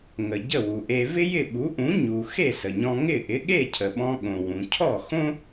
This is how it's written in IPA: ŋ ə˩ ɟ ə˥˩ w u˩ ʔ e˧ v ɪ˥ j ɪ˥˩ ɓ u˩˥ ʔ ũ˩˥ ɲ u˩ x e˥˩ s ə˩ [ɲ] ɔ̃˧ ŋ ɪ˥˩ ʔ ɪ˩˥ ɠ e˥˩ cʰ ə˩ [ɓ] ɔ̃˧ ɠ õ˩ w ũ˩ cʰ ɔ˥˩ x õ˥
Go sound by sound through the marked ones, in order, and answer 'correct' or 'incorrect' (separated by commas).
correct, correct